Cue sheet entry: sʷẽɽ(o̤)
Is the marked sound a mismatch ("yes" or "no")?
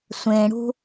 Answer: yes